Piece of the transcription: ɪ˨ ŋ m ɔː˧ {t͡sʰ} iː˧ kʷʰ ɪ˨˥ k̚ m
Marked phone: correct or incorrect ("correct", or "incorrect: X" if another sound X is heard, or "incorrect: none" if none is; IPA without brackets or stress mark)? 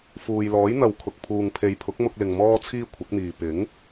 correct